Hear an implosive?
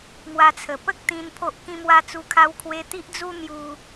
no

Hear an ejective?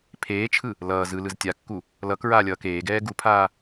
no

